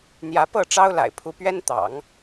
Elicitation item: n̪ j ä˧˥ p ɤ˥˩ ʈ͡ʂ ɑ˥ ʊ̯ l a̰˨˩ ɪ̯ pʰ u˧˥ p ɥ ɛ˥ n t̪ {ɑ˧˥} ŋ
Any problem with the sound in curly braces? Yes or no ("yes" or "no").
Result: yes